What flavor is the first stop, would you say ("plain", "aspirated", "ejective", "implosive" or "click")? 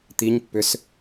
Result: plain